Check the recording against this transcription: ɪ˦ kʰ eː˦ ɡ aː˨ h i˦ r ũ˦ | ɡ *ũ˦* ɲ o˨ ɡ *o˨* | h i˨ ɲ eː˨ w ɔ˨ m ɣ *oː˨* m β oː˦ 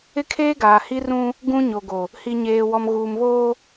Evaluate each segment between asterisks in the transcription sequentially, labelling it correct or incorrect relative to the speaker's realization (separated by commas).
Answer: correct, correct, incorrect